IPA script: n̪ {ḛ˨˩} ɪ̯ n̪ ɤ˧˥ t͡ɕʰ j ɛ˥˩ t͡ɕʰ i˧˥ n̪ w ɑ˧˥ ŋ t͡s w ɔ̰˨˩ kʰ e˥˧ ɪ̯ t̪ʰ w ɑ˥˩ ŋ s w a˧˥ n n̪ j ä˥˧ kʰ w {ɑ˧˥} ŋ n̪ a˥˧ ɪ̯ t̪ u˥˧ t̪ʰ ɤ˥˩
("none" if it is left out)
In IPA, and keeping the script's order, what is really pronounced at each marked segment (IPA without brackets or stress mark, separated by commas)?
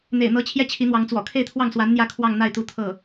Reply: ḛ˨˩, ɑ˥˧